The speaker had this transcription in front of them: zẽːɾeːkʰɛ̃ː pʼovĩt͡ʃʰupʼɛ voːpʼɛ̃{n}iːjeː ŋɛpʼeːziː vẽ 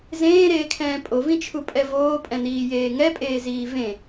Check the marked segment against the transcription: correct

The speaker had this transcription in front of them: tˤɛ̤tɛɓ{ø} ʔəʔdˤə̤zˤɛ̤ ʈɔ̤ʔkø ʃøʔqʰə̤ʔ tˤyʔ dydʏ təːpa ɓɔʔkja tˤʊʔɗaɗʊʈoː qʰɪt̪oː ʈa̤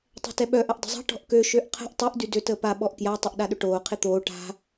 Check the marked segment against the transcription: incorrect: œ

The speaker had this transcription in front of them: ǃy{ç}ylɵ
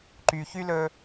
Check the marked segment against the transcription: correct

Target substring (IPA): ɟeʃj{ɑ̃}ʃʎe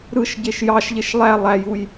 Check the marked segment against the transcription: incorrect: ɑ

